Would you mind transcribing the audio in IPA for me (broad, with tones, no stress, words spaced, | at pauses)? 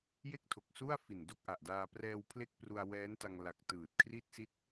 je˥˩k̚tʰo˨˩k̚ su˥˩a̯fi˨˩n do˥˩k̚ʔa˨˩ʔdaː˧ prɛː˧w pʰle˥˩k̚pru˧a̯wɛː˦˥nta˧ŋ la˨˩k̚ tɯː˨˩t̚kʰri˥˩t̚si˥˩t̚